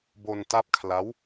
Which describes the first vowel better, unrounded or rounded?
rounded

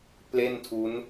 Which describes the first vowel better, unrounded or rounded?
unrounded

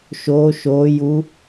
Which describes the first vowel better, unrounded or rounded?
rounded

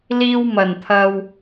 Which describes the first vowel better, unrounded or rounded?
unrounded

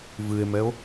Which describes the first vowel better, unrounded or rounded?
unrounded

